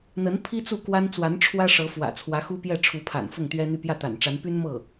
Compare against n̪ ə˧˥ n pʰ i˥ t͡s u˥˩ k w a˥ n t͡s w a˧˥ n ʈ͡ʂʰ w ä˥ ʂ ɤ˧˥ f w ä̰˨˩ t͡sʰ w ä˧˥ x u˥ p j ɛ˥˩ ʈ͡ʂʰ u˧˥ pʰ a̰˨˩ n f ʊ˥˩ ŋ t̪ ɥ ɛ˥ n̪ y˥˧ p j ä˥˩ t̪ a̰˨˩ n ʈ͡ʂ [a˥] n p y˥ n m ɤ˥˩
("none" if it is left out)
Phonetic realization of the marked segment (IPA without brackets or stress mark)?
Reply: a˧˥